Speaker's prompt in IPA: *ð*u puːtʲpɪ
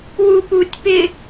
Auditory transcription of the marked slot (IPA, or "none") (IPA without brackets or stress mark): w